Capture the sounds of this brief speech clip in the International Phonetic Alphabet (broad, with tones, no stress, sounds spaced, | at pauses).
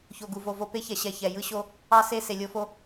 ç o˨ ɡ u˨ v o˨ v o˦ p e˦ ç ɛ˨ ɕ ɛ˨ ç ɛ˨ j ɯ˦ ɕ o˦ | ɑ˦ s e˦˨ s e˨ lʲ o˦ f o˦